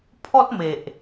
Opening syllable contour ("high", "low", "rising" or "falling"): high